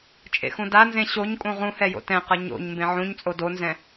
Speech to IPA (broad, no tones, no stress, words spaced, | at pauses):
t͡ʃʼḛxũdanzẽ ɕoɲkʼũ ʁũhɛjo̰ tɛ̃qʌ ɲo̰ɲ mbẽʕũɲ t͡sʼodonzɛ̃